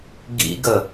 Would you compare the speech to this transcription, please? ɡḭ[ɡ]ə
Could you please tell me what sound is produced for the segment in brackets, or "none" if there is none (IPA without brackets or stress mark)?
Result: ɡ